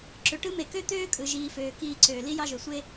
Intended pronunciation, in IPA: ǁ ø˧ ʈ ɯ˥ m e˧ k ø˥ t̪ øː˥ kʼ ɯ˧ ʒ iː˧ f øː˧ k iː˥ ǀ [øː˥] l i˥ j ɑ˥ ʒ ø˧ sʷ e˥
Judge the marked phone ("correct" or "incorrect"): incorrect